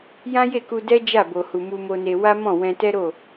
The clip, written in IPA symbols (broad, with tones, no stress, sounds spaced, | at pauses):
j ã˦ j e˦˨ k u˧ d ɛ˦ d͡ʒ a˦˨ b o˨ h u˨ m u˧ m o˧ n e˧ w a˦ m ɔ̃˦˨ w ɛ̃˧ t ɛ˦ ɾ o˦˨